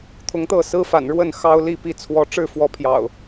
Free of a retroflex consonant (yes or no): no